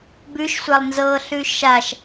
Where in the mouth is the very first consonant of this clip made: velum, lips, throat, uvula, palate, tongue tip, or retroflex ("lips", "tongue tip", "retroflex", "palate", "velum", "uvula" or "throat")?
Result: lips